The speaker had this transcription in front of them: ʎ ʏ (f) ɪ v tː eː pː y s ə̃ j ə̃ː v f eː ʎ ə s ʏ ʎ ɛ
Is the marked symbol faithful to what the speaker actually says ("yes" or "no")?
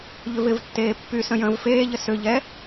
no